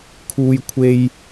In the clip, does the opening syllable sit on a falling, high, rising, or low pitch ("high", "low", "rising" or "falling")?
high